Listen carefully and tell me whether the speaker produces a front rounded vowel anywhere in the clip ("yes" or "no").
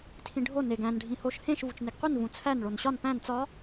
no